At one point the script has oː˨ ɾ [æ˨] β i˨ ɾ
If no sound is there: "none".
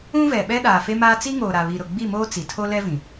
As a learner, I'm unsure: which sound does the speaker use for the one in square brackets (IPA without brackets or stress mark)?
a˨